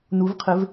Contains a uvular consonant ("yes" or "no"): yes